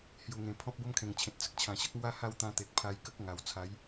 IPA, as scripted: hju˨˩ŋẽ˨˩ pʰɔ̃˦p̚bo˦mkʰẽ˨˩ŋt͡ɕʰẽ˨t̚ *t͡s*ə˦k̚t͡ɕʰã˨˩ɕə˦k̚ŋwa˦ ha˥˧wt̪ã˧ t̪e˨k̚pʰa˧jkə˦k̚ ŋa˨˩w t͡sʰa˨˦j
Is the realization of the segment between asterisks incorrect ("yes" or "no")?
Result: no